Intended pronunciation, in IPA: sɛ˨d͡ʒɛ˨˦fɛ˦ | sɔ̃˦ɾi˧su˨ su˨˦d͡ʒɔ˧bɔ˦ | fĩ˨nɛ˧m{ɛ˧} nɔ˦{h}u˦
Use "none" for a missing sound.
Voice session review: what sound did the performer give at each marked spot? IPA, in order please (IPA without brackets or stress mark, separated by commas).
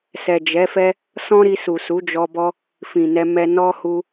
ɛ˧, h